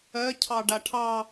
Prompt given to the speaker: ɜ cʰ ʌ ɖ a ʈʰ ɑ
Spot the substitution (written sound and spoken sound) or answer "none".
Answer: ʌ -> ɑ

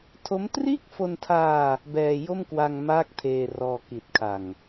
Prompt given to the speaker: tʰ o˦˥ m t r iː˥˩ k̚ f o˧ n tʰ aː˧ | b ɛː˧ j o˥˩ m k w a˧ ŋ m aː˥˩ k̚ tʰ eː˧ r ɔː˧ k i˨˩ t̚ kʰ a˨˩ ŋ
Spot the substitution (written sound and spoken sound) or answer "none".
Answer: none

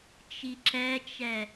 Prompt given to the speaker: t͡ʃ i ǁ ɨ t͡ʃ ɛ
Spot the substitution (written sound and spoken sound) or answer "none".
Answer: ɨ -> ɛ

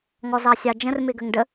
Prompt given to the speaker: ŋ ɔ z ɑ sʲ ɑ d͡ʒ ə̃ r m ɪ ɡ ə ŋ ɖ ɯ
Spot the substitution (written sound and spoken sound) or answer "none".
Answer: ɯ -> ə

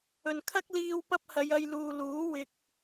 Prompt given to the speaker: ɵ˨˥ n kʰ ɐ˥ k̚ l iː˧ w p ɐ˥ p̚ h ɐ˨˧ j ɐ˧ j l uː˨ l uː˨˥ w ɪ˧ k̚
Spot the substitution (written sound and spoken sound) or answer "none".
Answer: ɵ˨˥ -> ɵ˨˩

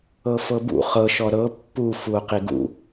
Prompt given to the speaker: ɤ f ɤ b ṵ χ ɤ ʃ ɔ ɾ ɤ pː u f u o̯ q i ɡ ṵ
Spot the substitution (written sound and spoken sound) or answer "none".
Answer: none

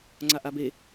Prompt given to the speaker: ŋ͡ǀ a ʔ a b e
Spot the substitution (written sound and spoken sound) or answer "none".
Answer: none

